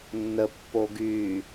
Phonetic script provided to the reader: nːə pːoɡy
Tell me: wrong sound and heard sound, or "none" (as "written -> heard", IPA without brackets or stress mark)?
none